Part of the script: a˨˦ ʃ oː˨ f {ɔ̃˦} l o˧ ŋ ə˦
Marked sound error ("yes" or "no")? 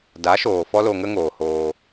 yes